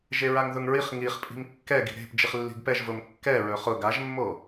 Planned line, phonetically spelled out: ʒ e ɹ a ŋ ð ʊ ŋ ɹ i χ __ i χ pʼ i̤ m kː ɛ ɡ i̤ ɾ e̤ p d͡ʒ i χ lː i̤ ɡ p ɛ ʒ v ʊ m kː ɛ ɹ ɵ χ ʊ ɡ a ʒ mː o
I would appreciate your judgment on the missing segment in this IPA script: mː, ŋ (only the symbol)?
ŋ